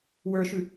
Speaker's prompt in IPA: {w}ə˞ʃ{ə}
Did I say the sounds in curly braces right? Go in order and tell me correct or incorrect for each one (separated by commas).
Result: correct, incorrect